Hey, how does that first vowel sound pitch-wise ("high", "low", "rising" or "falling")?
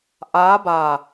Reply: rising